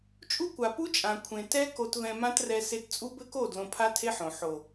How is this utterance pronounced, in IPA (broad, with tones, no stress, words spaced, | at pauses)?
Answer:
t͡ʃʼu˦kʷa˨pu˦t͡ʃʼã˨ kʷʰẽ˨ tɛ˦ ko˧tvɛ̃˧mã˦trɛ˧ se˧t t͡sʼu˦bɘ˦ko˦˨ dlõ˧pʰa˦tʰe˦ħõ˨ ħo˨